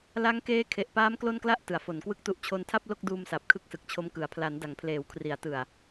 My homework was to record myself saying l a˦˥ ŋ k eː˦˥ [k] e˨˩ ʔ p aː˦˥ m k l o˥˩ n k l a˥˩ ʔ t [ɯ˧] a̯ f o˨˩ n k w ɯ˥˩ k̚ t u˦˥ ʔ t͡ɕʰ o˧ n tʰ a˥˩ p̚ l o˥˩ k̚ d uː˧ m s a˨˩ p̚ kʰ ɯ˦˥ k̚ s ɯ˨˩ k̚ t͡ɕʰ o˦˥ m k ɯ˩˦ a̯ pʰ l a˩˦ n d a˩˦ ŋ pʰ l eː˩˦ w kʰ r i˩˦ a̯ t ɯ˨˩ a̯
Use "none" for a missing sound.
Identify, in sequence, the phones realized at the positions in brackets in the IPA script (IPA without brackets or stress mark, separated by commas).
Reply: kʰ, ɯ˩˦